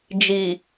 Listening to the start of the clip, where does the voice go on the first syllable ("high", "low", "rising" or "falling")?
low